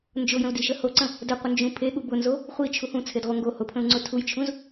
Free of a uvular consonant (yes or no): no